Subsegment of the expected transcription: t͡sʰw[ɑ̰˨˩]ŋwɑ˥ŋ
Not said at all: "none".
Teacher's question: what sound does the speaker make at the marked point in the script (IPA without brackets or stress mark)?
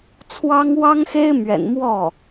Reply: ɑ˥